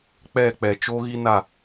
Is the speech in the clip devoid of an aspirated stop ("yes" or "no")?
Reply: yes